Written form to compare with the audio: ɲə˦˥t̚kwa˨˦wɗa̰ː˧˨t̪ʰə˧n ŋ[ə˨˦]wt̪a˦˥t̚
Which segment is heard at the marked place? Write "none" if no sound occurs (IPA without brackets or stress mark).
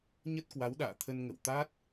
ə̰˧˨